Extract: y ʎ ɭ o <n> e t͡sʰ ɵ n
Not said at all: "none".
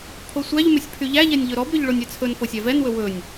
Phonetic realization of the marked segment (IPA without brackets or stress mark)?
nʲ